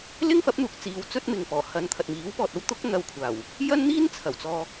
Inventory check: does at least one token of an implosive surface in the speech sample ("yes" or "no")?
no